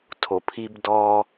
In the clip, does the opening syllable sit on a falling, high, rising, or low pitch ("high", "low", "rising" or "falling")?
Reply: low